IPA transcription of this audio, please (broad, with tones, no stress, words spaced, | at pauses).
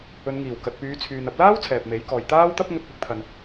ɵ˨˧nŋiː˨˩w kɐ˨t̚pyː˨˧t͡sʰyː˨n ɐ˧p̚laː˥w t͡sʰɛː˨p̚me˨˥jkɔː˨j t̪aː˥wt̪ɐ˥p̚ ŋɵ˧t̚pɪ˨˥k̚t̪ʰɐ˨n